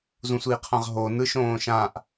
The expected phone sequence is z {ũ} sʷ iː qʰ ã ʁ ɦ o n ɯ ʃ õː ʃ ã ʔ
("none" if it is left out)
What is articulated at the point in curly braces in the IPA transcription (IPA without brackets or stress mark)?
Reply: ũ